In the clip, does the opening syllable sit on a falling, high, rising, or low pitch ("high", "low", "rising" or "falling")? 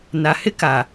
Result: low